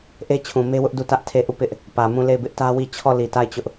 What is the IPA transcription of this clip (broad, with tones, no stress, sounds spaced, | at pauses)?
ʔ e˦ t͡ɕʰ ũ˨ m e˦ w ʊ˦ ʔ d u˦˨ t ä˦ ʔ tʰ e˦˨ ʔ u˦˨ p ɪ˦ ʔ | p ä˨ m ũ˦˨ l e˦˨ ɪ̯ b ɪ˦ ʔ t ä˦ w i˦˨ t͡ɕʰ ɔ˦˨ l i˨ t a˦˨ ɪ̯ t͡ɕ ʊ˦ ʔ